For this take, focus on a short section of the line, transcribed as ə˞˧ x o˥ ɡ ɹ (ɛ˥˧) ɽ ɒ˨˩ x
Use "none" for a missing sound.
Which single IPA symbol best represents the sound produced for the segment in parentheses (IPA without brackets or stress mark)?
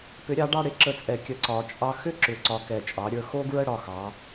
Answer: ə˥˧